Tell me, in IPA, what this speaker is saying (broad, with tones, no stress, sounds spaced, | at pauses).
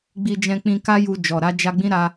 ɡ͡b i˧ d͡ʒ ɛ̃˧ k͡p ĩ˧ k a˦ j u˧ d͡ʒ ɔ˨ ɾ a˧ d͡ʒ a˧ ɡ͡b ĩ˦ ɾ a˦